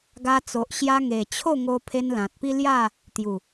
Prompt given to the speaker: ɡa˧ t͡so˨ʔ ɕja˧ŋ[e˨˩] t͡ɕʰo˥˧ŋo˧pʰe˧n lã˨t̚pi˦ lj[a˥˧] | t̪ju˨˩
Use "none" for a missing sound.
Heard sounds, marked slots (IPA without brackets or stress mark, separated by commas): e˨˩, a˥˧